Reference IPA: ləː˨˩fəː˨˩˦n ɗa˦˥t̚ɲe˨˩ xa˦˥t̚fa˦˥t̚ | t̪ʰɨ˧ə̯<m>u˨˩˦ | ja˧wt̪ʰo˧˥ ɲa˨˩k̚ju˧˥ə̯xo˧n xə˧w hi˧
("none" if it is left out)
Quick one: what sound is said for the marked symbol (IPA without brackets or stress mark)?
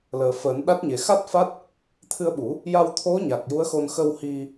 ɓ